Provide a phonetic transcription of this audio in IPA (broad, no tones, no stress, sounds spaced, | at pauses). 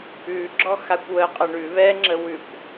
ʉ ɡ͡ǁ ɔ x a kʷ w ə qʼ ə ɳ ʉ β ɛ ŋ͡ǁ ə w ʉ kʷ